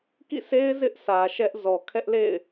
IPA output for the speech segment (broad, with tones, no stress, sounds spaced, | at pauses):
k ḭ˦˨ s e˦ ɪ̯ z ɪ˦ ʔ sʰ ä˨ ʃ ɛ˦ ʔ z ɔ˨ kʰ ɛ˦ ʔ l ḛ˦˨ ɪ̯